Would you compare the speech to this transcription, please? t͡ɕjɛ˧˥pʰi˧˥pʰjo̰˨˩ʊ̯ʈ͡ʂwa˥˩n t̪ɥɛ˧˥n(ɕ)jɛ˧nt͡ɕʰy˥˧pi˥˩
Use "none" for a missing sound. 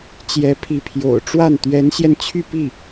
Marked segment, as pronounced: ɕ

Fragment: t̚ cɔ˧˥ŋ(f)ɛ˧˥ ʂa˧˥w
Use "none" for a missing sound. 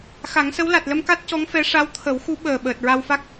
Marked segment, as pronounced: f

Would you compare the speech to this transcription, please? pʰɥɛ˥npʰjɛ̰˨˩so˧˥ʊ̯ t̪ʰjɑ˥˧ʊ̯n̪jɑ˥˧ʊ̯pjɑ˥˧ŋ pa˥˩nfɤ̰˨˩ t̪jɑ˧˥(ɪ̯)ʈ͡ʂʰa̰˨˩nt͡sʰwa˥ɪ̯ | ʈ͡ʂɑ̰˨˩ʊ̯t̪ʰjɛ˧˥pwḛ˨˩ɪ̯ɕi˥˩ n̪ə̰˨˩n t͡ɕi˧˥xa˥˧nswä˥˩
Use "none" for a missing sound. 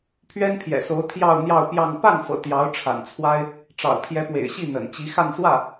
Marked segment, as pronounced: ʊ̯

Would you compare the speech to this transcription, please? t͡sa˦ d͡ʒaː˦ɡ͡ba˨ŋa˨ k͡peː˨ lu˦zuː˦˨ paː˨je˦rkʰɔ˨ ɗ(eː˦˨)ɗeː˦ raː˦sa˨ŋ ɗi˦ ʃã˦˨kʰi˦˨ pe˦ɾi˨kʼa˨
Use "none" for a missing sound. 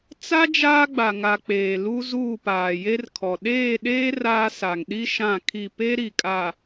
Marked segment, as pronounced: eː˦˨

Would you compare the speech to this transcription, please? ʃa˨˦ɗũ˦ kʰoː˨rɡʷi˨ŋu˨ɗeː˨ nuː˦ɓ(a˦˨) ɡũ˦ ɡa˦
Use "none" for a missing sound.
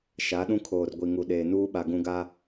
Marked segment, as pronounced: a˨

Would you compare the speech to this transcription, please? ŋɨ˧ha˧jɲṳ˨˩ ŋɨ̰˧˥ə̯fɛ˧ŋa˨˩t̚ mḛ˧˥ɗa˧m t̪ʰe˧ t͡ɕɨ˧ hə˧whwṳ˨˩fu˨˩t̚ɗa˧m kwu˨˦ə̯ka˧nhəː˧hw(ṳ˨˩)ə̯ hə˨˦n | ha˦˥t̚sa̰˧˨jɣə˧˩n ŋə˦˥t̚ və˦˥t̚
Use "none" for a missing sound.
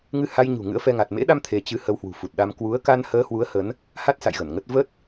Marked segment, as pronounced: u˨˦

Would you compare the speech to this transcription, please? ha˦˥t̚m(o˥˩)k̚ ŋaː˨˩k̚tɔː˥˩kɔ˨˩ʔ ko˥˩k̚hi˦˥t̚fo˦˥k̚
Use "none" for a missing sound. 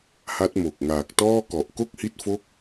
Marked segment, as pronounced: o˨˩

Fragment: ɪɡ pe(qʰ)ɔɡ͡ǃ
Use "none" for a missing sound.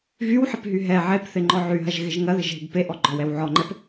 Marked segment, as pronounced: ʔ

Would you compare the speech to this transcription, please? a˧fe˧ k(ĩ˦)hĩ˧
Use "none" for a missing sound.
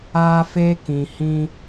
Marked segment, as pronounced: ĩ˨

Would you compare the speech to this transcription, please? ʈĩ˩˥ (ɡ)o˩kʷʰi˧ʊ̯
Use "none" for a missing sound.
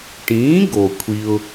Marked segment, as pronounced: ɡ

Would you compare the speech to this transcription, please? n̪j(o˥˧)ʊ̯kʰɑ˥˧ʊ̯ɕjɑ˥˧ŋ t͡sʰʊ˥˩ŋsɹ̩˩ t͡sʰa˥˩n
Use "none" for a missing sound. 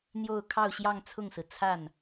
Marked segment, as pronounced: o˥˧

